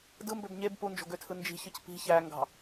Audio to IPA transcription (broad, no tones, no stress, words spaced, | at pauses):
dɯmbøb ɲeb pund͡ʒo̤ɡøtʰɯ nd͡ʒi̤çɯc pi̤ çæŋɡɑ̤